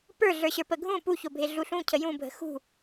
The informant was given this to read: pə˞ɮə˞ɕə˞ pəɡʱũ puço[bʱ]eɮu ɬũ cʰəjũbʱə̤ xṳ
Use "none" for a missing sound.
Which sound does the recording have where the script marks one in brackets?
bʱ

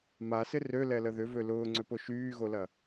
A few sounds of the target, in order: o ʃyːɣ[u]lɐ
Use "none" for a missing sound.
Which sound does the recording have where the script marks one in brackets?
o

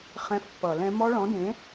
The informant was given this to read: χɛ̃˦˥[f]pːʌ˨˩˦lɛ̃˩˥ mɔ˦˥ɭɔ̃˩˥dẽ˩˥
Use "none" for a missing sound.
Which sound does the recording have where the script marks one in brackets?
f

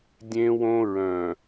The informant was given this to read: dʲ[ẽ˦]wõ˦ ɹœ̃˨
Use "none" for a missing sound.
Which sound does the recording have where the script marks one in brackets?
ẽ˦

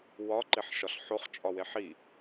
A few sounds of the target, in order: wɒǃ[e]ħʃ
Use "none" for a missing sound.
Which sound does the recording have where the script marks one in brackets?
e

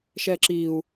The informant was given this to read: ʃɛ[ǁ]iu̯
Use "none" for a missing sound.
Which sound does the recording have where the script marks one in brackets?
ǁ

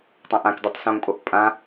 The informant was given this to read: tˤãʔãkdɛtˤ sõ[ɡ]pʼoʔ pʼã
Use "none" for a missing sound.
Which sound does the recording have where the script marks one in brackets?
ŋ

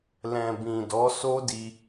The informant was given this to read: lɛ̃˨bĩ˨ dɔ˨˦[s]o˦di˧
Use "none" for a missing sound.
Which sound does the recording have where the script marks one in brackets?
s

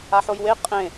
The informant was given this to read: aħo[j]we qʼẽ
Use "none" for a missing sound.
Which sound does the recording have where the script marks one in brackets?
j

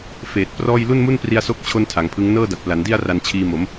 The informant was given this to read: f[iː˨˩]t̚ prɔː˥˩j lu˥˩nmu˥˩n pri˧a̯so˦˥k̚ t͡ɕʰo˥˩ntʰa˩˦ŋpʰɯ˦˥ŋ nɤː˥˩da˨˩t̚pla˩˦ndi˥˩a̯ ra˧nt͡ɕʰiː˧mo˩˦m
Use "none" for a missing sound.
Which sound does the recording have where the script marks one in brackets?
eː˨˩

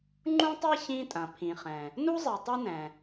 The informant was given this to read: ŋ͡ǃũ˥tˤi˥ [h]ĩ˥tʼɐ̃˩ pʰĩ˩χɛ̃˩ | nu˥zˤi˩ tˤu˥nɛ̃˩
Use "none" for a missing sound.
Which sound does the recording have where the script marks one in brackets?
ç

